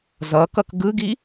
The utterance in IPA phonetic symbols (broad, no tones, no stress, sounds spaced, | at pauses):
z ʌ k ʌ k ɡ ɯ ɡ i